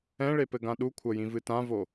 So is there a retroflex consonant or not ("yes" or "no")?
yes